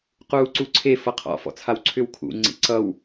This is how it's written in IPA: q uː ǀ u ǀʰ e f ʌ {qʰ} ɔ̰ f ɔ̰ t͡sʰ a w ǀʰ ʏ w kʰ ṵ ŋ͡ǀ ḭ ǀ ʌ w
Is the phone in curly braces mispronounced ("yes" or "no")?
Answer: no